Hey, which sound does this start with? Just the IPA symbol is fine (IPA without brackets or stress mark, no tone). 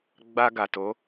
ɡ͡b